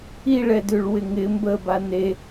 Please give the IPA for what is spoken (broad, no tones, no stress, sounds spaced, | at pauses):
i ɭ ɛ d ʉ ɭ w ɪ ŋ ɪ m b ə b a n e